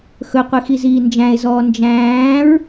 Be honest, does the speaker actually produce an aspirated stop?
no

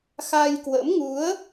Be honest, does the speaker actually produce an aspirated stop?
no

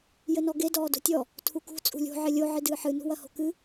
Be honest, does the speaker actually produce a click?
no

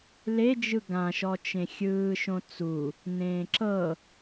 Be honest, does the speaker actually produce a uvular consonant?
no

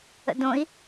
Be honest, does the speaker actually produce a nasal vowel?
yes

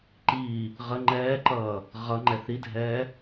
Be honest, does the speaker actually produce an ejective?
no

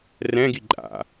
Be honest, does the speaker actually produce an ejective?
yes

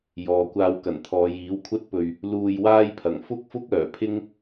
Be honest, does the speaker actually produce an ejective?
no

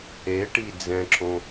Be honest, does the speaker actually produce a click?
yes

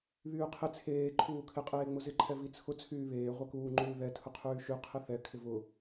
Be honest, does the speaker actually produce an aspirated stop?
yes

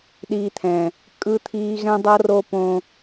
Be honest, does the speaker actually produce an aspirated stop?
yes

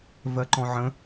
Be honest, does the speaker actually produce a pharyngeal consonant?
yes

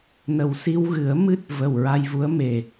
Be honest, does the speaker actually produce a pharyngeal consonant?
no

